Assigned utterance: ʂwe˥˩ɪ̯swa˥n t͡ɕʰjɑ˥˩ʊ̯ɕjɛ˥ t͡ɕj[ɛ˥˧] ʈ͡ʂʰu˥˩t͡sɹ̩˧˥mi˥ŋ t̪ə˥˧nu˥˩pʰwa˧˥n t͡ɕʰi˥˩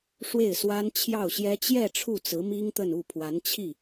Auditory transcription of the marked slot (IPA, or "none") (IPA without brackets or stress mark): ɛ˥˧